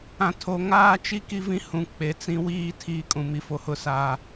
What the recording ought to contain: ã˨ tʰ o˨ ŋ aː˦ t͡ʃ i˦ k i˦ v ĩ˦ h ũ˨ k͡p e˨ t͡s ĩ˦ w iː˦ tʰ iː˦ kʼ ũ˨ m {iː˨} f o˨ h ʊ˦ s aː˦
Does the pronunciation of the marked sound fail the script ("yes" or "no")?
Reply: yes